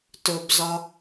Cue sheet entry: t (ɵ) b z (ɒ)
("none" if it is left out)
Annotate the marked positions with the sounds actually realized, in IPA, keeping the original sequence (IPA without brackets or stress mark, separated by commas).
ɵ, ɒ